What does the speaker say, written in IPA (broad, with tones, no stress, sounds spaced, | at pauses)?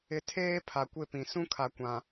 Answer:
ɪ˨˦ tʰ eː˦ pʰ a˨ kʷ ɪ˦˨ p ĩ˨ s ũ˦ kʰ a˨ kʷ ã˨